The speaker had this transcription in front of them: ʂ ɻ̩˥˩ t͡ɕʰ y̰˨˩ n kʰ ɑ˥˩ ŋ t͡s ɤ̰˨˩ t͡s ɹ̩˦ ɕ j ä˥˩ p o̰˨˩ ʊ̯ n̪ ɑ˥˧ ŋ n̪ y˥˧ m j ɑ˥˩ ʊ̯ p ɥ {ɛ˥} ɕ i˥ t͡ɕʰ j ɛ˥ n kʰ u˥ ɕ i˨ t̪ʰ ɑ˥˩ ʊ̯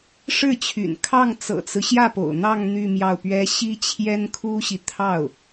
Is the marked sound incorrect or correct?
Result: correct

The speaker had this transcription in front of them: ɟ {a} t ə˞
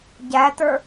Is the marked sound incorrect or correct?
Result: incorrect: æ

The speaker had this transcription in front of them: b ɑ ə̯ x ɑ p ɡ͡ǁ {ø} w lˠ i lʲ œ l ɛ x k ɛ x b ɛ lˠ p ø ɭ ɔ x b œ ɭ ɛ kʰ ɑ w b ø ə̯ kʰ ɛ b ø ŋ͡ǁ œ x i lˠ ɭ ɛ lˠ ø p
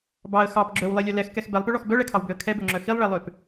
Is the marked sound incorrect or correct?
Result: correct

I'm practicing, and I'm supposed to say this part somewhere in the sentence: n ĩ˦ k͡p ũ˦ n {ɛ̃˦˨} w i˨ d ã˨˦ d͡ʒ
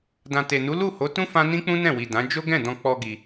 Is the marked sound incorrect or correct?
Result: correct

